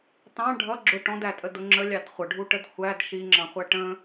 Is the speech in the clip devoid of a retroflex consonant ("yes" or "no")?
no